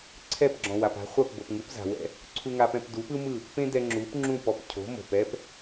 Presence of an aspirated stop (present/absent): present